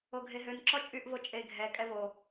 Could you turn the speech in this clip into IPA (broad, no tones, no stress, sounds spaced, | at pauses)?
o ɡʱ e ɦ ø n ǁ ɔ t͡ʃʼ y ʔ v o t͡ʃʼ e ɡʱ ɛ kʼ ɛ v o